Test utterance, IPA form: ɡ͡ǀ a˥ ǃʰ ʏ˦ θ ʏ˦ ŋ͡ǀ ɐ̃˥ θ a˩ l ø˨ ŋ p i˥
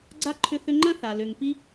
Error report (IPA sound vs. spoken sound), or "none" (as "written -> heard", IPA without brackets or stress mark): ŋ͡ǀ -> ŋ͡ǃ